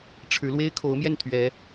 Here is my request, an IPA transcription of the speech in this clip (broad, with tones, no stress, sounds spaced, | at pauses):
ʈ͡ʂʰ ɻ̩˨˦ l w e˦ ɪ̯ kʰ o˨˦ ʊ̯ m j ɛ˥˨ n t̪ʰ ɥ ɛ˨˦